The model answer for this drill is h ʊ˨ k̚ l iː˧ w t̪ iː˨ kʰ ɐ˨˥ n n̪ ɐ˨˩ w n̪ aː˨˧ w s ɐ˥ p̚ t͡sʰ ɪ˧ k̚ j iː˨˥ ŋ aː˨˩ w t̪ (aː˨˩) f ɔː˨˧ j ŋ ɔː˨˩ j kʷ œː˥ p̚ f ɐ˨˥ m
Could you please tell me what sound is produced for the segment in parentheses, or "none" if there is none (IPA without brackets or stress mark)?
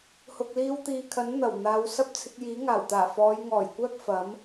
aː˨˩